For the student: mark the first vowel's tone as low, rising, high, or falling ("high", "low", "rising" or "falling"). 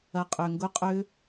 low